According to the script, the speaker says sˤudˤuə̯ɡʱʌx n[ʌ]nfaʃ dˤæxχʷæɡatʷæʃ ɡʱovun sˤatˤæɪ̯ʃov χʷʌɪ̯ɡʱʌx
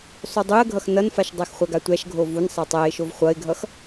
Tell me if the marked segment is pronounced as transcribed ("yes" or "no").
yes